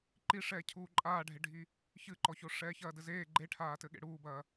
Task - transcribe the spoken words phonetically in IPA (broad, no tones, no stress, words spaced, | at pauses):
ǃiʂɛː cʰuːǃʼaːɖʱeɖʱi | çɨǃɔço ʂɛːçɐːdɘzeː ɡ͡ǃeʈʰaːtɘɠḛ ɽuːbɐː